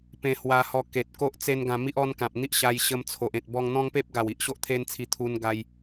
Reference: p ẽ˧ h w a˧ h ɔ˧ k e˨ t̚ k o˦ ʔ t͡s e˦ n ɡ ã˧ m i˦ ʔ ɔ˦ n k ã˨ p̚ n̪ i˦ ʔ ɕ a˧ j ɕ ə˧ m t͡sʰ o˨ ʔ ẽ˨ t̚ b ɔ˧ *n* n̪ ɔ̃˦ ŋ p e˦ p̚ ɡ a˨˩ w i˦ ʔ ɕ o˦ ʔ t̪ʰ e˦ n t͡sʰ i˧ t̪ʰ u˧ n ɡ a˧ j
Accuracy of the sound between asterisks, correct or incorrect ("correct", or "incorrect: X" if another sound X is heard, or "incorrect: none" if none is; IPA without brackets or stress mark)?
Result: incorrect: ŋ